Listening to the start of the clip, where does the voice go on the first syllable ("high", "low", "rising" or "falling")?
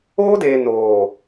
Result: high